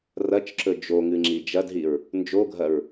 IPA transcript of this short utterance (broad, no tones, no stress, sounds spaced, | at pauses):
r ɐ t͡ʃ ǁ ɵ d͡ʒ o ŋ ɨ ŋ͡ǁ i d͡ʒ ɐ d ɦ i ɹ | n d͡ʒ o ɡʱ ɐ ɹ